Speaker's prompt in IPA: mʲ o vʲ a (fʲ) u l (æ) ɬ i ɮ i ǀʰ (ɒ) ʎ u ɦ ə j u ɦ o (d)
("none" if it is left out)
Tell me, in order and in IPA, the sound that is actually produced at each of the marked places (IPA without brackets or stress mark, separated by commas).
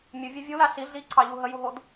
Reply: vʲ, a, ɑ, d